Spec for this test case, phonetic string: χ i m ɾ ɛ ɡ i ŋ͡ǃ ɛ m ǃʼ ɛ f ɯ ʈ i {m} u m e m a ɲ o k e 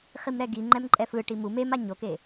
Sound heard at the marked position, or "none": m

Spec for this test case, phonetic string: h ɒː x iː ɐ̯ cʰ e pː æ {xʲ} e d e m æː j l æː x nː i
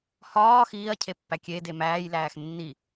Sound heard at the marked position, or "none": kʲ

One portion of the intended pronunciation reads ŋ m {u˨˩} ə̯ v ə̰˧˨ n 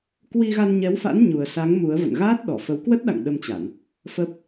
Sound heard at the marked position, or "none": u˨˦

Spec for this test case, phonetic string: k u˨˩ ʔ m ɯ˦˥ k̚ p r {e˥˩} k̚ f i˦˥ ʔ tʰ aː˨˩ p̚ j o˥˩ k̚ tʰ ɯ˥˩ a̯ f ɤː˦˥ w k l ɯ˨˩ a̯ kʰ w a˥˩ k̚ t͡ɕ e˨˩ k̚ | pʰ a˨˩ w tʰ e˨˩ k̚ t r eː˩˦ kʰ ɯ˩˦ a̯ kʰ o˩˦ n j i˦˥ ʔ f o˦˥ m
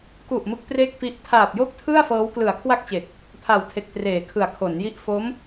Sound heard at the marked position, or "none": e˥˩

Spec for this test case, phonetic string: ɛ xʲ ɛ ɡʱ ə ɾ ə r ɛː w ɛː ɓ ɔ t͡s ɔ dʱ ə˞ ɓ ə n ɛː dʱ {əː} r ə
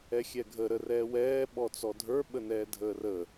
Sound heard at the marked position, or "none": əː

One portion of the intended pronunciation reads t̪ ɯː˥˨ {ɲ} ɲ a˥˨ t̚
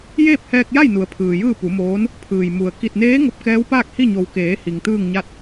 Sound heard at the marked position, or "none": ŋ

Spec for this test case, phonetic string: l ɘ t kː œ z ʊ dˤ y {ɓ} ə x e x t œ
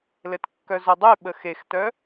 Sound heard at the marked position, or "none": ɓ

